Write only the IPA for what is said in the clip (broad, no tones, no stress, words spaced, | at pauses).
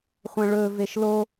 χʷɐ̃ɭɵ veʃlo